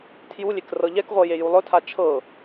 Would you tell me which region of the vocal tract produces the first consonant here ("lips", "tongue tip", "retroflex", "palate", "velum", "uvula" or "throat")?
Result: tongue tip